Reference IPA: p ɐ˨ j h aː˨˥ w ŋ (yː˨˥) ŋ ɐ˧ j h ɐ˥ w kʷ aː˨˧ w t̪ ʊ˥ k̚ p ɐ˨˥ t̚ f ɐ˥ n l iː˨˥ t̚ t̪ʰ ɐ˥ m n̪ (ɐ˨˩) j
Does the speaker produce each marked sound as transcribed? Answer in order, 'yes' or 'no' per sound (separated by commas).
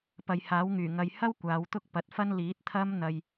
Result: no, no